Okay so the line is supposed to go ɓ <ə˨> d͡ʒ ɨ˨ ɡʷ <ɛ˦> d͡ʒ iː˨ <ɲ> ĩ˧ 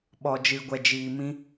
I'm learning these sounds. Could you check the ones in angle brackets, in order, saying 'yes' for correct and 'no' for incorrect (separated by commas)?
no, no, no